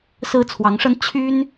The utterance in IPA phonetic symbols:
s ɹ̩˥ t͡sʰ w ɑ˧˥ ŋ ʂ ə˥ n t͡ɕʰ y˥ n

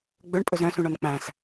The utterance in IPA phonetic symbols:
ɡ͡b ɵ ɳ pʼ ɵ z œ̃ s ũ ɳ ɔ n k͡p æ̃ s

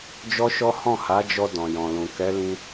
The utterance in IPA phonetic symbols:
d͡ʒ ɔ˦ ʃ ɔ˦ h ɔ̃˦˨ h a˨˦ d͡ʒ ɔ˧ d ɔ̃˨ j ɔ̃˨ l ũ˨ k ɛ˨˦ l ĩ˧

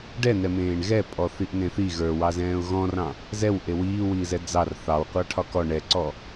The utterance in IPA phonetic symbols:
ɖ ɛ n ɛ m ẽː ɳ ɣ ɛ pʼ ɔ θ i ʔ n ẽ θ i ɣ ə˞ w ɑ z ɛ̃ː ʊ̯ ɣ ɔ̃ r ɑ̃ | z ɛ w ʔ e w iː w iː z ɛ d͡z ɑ r θ ɑ w qʷ ɑ ʈʰ ɒ k ɔ ɳ ɛ ǀ ɔ

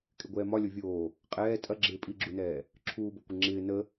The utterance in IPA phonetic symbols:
kʼ ɪ ɡʷ ɛː m ɒ lʲ o vʲ oː | qʼ ɛː tʼ ɐ ɡ͡ǁ ɪː pʼ i ɡ͡ǁ u n ɛː | ǁʰ uː b o kʷ ɪ ŋ͡ǁ ɪː n ə

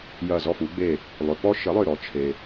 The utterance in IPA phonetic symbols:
j ɐ˧˩ z ɔ˧˩ f u˩˧ ɡ͡b e˧˩ | lˠ ø˩ p ɔ˦ ʃ ə˩˥ lˠ ø˧˩ ɾ ɔ˩˧ t͡ʃʰ e˩

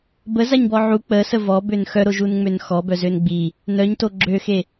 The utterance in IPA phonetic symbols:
b ə z a ɲ b ɔ ʕ u k͡p ə s ə v ɔ b ø n x œ ɾ o ʒ u n ŋ͡m ø n x ɔ b œ z ø n ɡ͡b i | n œ ɲ t o ɡ͡ǁ ø x e

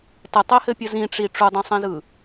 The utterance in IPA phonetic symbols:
t ə tˤ e h ɘ pʲ ə z ĩ ʈ͡ʂ i ʈ͡ʂ u dˤ ĩ sˤ ĩ z ɯ

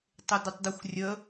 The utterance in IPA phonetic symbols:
tˤ ɪ d ɪ tˤ d ɐ xʷ rʲ ə

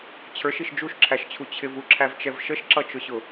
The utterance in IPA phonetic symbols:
t͡ɕʰ ə˞ ʃ i ʃ d͡ʒ u ʃ ǁʰ æ ʃ t͡ɕʰ u t͡ɕʰ ɪ v u ǁʰ æ v t͡ʃ ɛ v ʃ ə ʃ ǁ ʌ t͡ʃ ʊ ɕ ʊ

